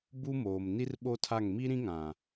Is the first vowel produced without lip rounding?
no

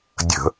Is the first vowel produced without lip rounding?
yes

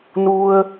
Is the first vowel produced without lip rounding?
no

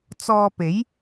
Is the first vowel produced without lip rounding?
no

